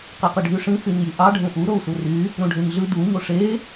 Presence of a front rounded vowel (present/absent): present